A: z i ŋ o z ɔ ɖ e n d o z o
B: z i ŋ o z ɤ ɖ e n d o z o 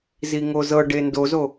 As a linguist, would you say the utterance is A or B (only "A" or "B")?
B